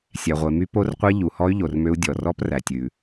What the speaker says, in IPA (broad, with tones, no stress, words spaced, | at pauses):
sʲæ˩ʁʷe˩my˦˥ po˦˥rqʷɛ˦˥ ʎu˩hɔ˦˥y̯ ʎo˩rmø˦˥u̯ dʲɔ˩rɔ˦˥præ˩tʲʉ˩